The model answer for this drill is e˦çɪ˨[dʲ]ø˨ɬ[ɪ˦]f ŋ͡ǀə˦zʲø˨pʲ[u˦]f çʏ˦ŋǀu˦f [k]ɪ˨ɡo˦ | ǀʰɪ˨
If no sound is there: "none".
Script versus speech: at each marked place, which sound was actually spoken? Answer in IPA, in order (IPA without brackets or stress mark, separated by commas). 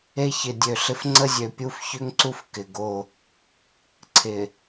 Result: dʲ, ɪ˦, u˦, k